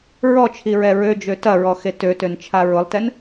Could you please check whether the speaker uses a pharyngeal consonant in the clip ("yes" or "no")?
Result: no